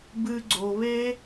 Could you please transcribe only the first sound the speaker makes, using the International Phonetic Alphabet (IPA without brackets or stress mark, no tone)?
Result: b